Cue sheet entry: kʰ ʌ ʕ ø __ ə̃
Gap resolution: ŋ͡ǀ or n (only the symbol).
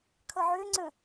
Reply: ŋ͡ǀ